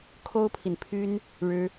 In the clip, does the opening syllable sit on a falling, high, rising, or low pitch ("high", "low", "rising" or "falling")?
high